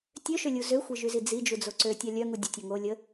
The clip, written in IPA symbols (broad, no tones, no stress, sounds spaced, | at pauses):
tʲ ø ʃ ø lʲ u z ø xʷ e ʒ y z i d͡z i d͡ʒ u d͡z o ǀ ø tʲ a lʲ œ ŋ u dʲ ə tʲ o ŋ o lʲ ə